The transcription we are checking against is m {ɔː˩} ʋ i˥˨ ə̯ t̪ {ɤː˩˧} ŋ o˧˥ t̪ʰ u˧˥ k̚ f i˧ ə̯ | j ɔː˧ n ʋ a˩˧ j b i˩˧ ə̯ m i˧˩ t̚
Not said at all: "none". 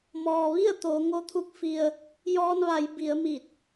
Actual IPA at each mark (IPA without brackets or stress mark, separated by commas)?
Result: ɔː˩, oː˩˧